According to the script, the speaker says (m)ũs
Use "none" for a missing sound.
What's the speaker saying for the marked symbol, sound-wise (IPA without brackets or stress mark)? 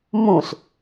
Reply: m